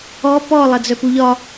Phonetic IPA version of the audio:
ɔ p ɔ lˠ ɐ d͡z œ p u ʎ ɒ

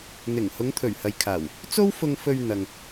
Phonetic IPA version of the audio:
n̪ ɪ˨˩ ŋ h ʊ˨˧ ŋ t̪ʰ ɵ˨˩ ɥ h ɐ˨ j kʰ aː˨˩ w | t͡s o˥ w f ʊ˧ ŋ f ɵ˧ ɥ n̪ ɐ˨ ŋ

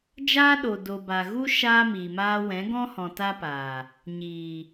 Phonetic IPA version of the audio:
d͡ʒ aː˦ ɗ o˨ d o˨ b a˨ ɣ u˦ ʃ aː˦ m iː˨ m aː˦ w ɛ̃˨˦ ɡ ɔ̃˦ h ɔ̃˨ t a˦ p aː˨ | ɲ iː˨

